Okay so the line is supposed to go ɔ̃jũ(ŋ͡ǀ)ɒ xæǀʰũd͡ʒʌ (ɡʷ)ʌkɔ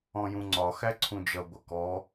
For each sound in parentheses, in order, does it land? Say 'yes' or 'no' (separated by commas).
yes, yes